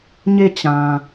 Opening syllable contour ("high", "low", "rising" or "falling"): falling